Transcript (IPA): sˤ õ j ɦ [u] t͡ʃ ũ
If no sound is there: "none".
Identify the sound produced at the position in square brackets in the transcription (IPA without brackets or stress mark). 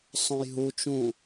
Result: u